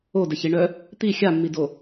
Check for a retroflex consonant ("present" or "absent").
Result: present